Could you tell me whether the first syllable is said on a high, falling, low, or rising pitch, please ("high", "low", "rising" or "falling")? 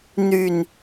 low